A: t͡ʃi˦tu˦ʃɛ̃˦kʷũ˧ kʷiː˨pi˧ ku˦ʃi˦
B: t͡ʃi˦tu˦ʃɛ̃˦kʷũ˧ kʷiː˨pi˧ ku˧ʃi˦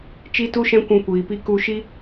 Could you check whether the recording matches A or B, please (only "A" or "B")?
B